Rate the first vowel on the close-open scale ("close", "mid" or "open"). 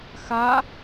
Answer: open